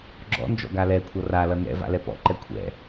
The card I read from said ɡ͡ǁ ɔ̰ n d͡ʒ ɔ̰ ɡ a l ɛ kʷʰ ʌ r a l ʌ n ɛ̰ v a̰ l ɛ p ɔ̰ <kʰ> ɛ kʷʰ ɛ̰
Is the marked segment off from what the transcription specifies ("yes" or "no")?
yes